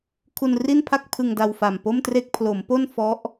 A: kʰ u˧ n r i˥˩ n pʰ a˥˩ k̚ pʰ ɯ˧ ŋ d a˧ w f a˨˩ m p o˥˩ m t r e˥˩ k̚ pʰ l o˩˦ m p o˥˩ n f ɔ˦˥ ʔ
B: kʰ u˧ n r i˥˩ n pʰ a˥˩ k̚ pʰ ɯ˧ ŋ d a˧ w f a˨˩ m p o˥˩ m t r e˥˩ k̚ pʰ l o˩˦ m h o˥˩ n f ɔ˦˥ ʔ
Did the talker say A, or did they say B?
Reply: A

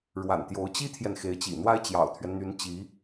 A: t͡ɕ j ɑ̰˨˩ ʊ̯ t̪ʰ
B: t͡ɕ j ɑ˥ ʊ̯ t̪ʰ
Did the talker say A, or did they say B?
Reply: A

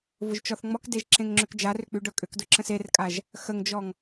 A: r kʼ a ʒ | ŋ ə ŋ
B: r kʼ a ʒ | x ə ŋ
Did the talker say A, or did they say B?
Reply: B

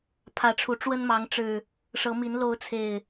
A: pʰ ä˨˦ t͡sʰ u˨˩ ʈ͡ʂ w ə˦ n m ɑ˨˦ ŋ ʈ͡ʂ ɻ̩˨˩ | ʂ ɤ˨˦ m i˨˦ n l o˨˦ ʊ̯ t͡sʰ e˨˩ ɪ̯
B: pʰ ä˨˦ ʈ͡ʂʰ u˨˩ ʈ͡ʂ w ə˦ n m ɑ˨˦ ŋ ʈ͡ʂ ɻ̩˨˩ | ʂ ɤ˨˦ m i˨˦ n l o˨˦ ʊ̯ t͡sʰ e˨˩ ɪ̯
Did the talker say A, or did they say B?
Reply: B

